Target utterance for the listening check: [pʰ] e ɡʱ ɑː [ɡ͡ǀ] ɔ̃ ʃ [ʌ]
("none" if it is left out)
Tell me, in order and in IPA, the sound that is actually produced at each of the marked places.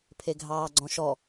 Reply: pʰ, ɡ͡ǀ, ɔ

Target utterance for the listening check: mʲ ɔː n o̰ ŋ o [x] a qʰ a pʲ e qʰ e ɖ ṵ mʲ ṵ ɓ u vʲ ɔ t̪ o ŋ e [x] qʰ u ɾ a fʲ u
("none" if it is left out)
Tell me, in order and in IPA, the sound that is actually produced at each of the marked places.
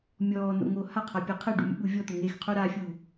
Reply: h, x

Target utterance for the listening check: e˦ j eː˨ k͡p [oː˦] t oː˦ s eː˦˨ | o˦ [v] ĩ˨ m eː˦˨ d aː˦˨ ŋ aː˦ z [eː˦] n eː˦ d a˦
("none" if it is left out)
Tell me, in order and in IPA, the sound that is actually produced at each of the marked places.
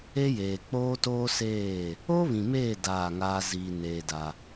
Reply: oː˦, β, iː˦

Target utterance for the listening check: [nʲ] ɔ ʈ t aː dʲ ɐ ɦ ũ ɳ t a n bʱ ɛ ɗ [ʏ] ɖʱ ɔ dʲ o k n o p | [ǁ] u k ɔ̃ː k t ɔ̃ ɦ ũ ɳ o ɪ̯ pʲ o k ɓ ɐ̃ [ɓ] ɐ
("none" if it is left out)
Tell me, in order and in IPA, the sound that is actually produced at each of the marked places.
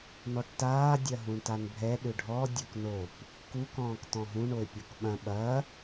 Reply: n, ʏ, k, ɓ

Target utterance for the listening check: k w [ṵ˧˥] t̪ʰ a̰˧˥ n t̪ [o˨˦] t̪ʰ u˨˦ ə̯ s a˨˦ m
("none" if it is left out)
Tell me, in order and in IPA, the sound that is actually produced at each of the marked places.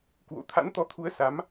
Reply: o̰˧˥, ɔ˨˦

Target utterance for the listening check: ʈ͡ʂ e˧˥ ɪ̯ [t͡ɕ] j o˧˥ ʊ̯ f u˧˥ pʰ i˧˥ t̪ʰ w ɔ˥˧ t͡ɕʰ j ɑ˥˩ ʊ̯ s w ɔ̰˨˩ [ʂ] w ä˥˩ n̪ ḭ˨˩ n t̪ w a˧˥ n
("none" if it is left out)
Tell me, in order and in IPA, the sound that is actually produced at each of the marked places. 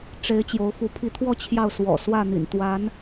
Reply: t͡ɕ, s

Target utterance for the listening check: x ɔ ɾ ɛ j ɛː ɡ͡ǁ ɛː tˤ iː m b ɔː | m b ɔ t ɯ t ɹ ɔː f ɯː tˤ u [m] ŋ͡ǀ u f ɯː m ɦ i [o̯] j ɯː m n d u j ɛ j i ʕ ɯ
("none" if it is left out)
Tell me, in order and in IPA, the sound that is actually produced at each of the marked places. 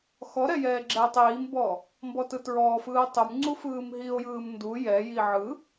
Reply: m, o̯

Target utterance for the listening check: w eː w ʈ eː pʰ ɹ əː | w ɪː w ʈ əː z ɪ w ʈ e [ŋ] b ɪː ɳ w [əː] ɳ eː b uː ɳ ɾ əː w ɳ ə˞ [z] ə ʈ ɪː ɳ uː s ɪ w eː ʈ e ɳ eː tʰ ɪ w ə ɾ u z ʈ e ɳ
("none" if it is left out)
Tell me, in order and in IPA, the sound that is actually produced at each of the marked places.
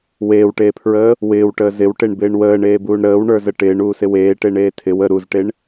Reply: ɳ, əː, z

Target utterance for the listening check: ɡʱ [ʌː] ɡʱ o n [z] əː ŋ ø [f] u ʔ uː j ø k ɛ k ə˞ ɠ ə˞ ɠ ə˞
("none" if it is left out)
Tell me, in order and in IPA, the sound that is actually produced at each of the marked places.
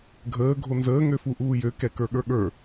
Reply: əː, z, f

